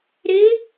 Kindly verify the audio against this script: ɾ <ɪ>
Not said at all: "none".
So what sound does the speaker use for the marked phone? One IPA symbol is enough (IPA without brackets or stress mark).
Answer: ɪ